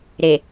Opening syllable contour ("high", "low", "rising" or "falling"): low